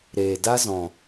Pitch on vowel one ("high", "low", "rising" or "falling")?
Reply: low